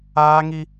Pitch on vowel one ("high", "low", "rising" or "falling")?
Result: high